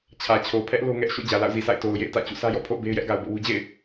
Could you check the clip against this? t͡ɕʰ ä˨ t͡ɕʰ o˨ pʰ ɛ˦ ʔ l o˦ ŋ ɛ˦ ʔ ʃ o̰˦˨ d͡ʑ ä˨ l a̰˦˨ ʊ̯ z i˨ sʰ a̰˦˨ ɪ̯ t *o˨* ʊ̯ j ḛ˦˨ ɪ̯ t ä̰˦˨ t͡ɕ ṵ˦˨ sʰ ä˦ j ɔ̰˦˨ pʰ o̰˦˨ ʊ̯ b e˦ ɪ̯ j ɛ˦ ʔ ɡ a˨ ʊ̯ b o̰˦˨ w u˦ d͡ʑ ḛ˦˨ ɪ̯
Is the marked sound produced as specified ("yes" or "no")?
yes